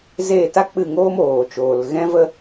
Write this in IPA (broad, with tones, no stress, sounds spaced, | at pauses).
z eː˦˨ t a˦ k͡p ɨ˦˨ ŋ oː˦ m oː˨ t͡ʃ oː˨ l ɣ ɛ̃˦ v ə˦